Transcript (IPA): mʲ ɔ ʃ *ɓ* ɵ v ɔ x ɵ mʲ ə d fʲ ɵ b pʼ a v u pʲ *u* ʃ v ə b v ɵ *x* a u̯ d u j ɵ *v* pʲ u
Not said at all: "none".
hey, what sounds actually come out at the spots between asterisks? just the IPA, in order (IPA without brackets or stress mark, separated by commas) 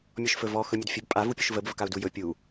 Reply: f, u, k, none